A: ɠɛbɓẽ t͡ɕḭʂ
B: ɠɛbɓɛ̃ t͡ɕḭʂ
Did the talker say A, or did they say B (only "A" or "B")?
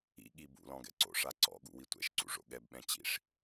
B